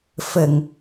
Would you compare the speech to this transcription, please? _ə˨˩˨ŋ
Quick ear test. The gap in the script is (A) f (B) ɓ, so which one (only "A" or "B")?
A